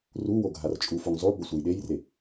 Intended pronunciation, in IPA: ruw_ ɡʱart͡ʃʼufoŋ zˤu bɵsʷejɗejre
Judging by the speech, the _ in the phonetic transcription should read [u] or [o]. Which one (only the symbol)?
o